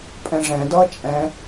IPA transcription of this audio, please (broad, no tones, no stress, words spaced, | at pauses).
pʼɛ̃ʐɛ̃dʌː t͡ʃʼɛ̃